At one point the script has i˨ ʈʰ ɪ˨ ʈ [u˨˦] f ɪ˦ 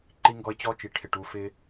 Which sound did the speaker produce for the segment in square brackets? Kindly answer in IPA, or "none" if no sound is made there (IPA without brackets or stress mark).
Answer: u˨˦